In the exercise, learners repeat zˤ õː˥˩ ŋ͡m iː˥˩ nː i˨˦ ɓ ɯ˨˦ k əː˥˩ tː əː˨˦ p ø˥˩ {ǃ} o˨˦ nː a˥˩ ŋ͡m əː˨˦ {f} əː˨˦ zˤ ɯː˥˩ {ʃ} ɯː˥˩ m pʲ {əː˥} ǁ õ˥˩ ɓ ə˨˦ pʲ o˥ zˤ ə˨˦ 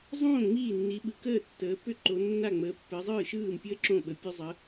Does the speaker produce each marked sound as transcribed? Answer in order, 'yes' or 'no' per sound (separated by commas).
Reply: yes, no, yes, yes